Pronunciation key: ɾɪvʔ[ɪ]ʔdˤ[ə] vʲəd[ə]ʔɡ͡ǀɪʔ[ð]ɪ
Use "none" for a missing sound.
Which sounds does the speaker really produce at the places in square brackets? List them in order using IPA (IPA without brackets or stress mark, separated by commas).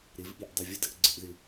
i, ə, ə, ð